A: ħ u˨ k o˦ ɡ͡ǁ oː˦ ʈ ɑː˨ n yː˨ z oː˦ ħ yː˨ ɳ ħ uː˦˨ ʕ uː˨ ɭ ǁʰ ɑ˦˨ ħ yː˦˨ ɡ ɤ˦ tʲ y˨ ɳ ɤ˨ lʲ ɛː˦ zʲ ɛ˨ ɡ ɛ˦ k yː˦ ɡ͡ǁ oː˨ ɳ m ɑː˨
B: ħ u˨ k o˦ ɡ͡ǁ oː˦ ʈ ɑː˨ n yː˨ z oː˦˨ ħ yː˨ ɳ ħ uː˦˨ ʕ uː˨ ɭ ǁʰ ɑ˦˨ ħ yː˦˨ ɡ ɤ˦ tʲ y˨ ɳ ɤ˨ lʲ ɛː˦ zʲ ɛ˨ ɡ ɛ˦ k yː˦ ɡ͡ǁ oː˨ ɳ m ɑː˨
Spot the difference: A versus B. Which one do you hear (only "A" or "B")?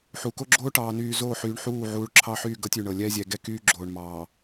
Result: B